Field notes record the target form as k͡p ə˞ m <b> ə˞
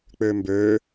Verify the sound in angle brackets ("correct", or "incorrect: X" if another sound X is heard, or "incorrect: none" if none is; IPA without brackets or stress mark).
correct